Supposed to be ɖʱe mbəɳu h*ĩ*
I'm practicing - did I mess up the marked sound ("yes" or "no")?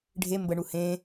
yes